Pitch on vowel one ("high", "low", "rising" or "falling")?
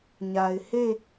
low